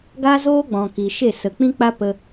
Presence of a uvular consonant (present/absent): absent